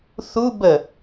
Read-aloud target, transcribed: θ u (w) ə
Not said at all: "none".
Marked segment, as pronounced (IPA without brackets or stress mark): b